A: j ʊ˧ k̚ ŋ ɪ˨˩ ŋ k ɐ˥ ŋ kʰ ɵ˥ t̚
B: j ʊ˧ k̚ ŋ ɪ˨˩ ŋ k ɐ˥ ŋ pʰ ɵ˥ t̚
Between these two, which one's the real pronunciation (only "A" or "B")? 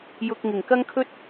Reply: A